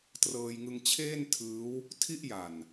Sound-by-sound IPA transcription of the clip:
trɤː˧jŋɯ˧ŋt͡ɕʰeː˥˩n tʰɯː˦˥w | tʰi˥˩ʔja˨˩n

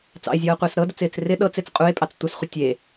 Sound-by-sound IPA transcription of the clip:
t͡sɑ̰e̯zʲɤːqʷɪːs ɾɤdət͡sɪːt͡s rɪ ɗɤt͡set͡s qʼue̯pʼɑt͡s tʷɪsχʷə tʲe

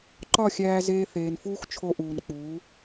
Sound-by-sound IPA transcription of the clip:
ǃɒ˦˨xʲæː˧zeː˧ θeː˨nfuː˦xt͡ʃʰo˧ʔuː˨n k͡puː˨˦

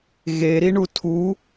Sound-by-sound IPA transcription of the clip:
ɣeɾiɳu tʰu

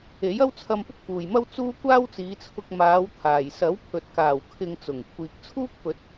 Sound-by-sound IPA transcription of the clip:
e˨˥jɐ˥wt͡sʰɐ˧m pʊ˥k̚fuː˨jmɐ˥w t͡suː˥ kʷaː˥wt͡siː˨˧t͡sʰʊ˧k̚ maː˨˧w t̪ʰaː˨j sɐ˨˥wpʰɵ˨t̚kaː˨˩w kʰɪ˧ŋt͡sʊ˨˩ŋ kʷʰiː˨k̚t͡sʰuː˥k̚pɵ˨˥t̚

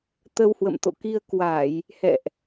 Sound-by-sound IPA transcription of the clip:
t̪ə˧whwə̰˧˨mt̪o̰˧˨ki˧ə̯ kwa˧˩˨j | hɛ̰˧˨ʔ

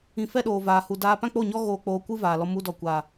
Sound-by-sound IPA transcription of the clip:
ĩ˨ fɛ˦ɗoː˨ vaː˨ hu˨ daː˧ pã˦k͡po˦˨ɲɔ˦ ɣoː˧ k͡poː˧kʷɨ˦vaː˨lɔ˧ mu˧dɔ˨kʷaː˨

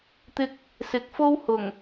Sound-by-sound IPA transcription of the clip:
t̪ɪ˧k̚ | sɪ˨˥k̚ fo˥whʊ˨˩ŋ

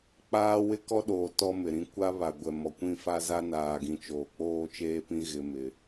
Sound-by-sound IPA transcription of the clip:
k͡paː˦ wɪ˦kɔ˦ɗoː˨ tɔ˦mɪ˨ɾĩ˦ kʷa˦βa˨ ɡʷɛ˨mɔ˨ kʷĩ˦˨fa˦za˦ naː˨ɡĩ˨ t͡ʃoː˨ k͡poː˦t͡ʃeː˦pĩ˦ ɣɪ˦mɪ˦

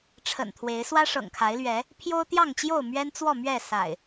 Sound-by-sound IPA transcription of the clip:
ʈ͡ʂʰə̰˨˩nt̪ʰwe˨˦ɪ̯ swä˦ʂɤ̰˨˩ŋkʰa˨˦ɪ̯lɥɛ˨˦ | pʰjo˦ʊ̯t̪jɑ˥˨ŋt͡ɕjo˥˨ʊ̯ mɥɛ˦nt͡swɔ˥˨mɥɛ˥˨ sa̰˨˩ɪ̯

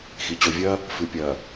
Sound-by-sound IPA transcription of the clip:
xi˨t͡ɕo˨vʲɐː˦ | fɨ˨pʲɐː˨

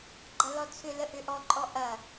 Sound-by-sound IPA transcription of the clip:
ɡ͡ǃɐlɔt͡sʰʏlə ʔʏʔɔǃʼɔʔ ɐ

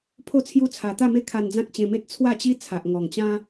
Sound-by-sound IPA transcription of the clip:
pʰo˥˧t͡sʰju˦ t͡sʰa˨˩t̪a˥˧me˦ kʰa˧nd͡zã˦k̚t͡ɕẽ˧me˦t̚ t͡sʰwa˥˧t͡ɕi˦ t͡sʰa˨ʔŋɔ˨˩ŋt͡ɕã˦

